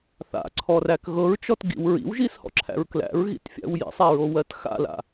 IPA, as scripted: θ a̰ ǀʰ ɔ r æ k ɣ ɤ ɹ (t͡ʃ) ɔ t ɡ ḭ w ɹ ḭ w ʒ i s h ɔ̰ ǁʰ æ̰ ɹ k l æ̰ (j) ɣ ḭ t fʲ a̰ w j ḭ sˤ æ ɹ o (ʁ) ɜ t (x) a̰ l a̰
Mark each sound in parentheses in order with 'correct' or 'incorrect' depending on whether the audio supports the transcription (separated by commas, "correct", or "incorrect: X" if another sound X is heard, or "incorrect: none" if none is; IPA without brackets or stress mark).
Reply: correct, incorrect: ɹ, incorrect: w, correct